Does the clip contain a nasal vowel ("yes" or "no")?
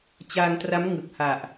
no